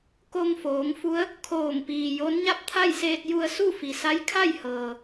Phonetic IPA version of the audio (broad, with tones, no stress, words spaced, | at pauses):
ko˧ŋfoː˩˧ŋfu˧˥ə̯ | kʰoː˧˩ŋpiː˩jo˧˥n ɲa˥˨p̚t̪ʰa˥˨jseː˧t̚ ju˧ə̯su˥˨fi˩sa˧˥j kʰa˥˨jhɤː˩